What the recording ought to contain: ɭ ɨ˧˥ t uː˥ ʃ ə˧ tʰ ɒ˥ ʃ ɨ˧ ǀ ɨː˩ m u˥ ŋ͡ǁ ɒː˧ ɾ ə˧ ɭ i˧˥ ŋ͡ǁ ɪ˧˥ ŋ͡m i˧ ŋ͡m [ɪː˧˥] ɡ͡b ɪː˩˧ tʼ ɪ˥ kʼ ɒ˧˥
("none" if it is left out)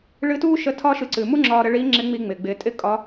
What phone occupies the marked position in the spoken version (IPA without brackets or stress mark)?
ɪː˩